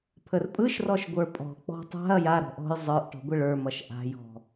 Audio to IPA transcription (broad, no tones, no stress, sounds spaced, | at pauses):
pʰ ə r pʼ ɯ ʃ r ɔ ʃ ɡʷ ə˞ pʼ ɔ̤ k͡p ɔ̤ tˤ a̤ ɐ̯ j a ɾ ɔ̤ ʔ ɔ̤ j zˤ ə˞ ʔ ʈ ɔ̤ ɡʷ ə ɭ ə˞ m ʌ ʃ ʔ a̤ j ɔ̤